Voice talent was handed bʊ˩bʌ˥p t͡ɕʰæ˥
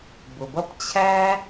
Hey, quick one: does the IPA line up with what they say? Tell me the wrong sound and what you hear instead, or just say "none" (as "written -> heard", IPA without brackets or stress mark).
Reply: none